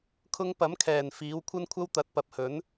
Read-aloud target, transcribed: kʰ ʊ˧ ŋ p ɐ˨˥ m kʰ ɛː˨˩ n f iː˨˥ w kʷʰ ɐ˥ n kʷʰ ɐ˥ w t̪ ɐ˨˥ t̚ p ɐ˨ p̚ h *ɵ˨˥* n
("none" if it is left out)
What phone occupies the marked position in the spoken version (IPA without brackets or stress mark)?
ɵ˨˥